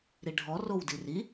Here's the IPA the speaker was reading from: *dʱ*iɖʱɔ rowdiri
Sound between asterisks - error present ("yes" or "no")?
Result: yes